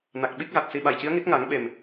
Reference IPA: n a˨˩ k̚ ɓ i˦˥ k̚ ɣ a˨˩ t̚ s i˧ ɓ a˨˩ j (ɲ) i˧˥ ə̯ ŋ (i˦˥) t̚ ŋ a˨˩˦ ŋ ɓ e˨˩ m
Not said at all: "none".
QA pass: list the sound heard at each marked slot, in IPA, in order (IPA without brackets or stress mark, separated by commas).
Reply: c, i˦˥